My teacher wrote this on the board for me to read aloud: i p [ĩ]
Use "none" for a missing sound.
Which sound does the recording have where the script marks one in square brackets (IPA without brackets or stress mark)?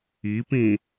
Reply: ĩ